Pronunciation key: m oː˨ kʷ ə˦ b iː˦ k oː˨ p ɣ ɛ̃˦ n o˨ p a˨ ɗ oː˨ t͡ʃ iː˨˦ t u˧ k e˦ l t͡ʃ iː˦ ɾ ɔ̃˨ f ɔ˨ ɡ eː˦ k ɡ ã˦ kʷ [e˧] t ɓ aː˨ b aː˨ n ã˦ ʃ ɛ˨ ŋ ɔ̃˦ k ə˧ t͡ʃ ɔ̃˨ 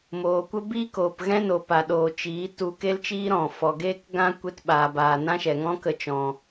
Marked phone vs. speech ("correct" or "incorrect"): correct